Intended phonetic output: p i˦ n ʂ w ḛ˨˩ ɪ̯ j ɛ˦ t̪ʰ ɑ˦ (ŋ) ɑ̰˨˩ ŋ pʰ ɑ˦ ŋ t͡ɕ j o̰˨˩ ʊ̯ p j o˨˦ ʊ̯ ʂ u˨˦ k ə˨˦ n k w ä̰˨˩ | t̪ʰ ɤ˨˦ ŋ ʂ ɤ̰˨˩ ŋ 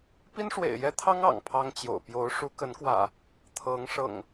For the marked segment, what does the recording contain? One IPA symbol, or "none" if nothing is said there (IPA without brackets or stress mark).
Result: ŋ